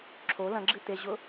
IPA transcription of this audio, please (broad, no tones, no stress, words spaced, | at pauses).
ǁʰo lɐ̃ɡ͡ǁɨ t̪eʑʊ